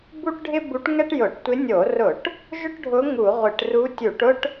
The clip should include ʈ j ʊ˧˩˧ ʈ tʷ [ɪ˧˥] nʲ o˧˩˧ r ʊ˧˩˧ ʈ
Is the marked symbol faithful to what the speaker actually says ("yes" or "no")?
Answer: yes